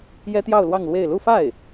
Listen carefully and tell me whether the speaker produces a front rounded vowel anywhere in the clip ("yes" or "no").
no